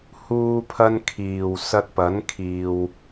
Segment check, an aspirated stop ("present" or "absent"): present